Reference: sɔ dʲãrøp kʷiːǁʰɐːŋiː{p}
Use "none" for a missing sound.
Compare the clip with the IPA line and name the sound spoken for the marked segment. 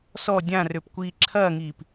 p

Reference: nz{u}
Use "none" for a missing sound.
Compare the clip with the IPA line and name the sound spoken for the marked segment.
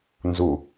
u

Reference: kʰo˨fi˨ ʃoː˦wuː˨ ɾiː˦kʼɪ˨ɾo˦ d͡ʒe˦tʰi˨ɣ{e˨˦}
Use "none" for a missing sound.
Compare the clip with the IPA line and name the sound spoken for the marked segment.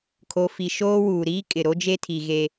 e˨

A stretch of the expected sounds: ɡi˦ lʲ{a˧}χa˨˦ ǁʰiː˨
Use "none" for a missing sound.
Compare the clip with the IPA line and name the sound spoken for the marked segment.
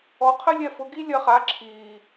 ɐ˧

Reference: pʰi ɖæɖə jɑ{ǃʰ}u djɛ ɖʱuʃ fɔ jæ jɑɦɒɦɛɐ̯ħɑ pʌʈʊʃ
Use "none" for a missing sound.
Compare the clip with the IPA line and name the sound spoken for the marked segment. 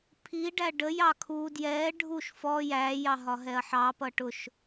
kʰ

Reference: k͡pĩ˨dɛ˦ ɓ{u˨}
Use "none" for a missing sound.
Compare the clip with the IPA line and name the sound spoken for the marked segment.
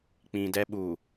u˨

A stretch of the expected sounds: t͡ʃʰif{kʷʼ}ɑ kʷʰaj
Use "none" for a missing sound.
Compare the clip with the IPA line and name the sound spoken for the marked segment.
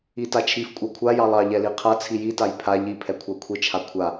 kʷʼ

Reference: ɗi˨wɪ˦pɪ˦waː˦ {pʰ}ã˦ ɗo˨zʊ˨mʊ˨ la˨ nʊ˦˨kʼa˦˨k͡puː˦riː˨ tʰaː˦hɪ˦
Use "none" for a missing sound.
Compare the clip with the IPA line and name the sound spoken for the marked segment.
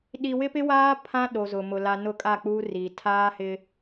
pʰ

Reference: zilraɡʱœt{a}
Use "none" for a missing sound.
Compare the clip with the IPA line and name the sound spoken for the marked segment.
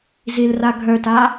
a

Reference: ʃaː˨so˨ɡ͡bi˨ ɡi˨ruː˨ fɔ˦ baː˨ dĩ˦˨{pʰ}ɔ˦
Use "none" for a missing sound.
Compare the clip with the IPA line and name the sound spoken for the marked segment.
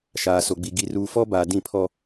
pʰ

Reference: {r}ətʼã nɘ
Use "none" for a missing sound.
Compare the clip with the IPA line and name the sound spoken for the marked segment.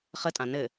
χ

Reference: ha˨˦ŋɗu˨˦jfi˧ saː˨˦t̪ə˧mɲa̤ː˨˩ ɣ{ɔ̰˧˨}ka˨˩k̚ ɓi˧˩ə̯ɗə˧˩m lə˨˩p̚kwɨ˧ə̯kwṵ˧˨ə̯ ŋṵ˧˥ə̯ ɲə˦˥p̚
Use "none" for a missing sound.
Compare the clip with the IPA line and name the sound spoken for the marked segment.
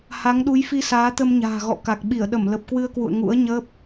ɔ̰˧˨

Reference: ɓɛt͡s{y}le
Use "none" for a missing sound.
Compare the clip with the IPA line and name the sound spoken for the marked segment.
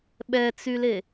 y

